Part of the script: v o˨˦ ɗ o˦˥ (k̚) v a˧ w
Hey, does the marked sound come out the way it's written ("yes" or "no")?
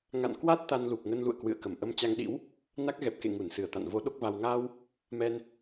yes